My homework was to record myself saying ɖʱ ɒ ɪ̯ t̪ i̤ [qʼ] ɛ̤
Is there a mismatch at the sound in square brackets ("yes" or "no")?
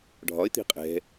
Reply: no